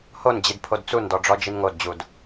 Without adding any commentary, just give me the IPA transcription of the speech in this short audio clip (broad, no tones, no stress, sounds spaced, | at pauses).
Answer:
h o n d͡ʑ i d pʰ o d t͡s u n d ɔ ɖ͡ʐ ɔ d͡ʒ i n ŋ o d d͡ʑ u d